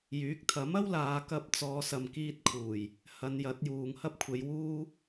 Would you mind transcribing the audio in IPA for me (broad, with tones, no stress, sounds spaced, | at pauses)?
j yː˨˥ k̚ t̪ʰ ɐ˨˥ m ɐ˥ w l aː˨˧ k ɐ˧ p̚ t͡s ɔː˨˧ s ɐ˨ m k iː˧ t̚ kʰ uː˨˩ j | h ɐ˨˧ n j ɐ˨˥ t̚ j uː˨ ŋ h ɐ˥ p̚ kʷʰ e˨˧ j w uː˥